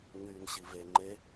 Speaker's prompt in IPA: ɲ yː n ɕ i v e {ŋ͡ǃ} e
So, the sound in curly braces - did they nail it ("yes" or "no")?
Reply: yes